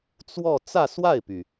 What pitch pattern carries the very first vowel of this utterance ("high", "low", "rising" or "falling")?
falling